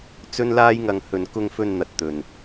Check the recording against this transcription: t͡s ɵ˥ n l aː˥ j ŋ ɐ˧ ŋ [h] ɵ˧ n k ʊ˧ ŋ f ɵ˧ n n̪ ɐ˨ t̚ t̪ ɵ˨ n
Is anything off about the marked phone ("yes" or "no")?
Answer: no